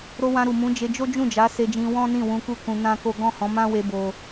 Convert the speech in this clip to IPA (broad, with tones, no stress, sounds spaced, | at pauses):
ɾ o˧ w ã˧ ɾ u˨ m ũ˨˦ d͡ʒ e˧ d͡ʒ o˦ d͡ʒ ũ˦˨ d͡ʒ a˨˦ s e˧ d͡ʒ ĩ˧ w ɔ̃˦ n ĩ˦˨ w ũ˧ k u˦ k ũ˧ n ã˦ k o˦ ɡ ɔ̃˦˨ h ɔ̃˨˦ m ã˦ w e˧ b o˧